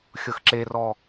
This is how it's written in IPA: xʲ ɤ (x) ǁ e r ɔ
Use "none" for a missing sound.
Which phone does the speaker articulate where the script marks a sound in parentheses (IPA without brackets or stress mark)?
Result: x